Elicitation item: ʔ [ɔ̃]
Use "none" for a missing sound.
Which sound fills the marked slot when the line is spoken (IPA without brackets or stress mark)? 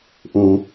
õ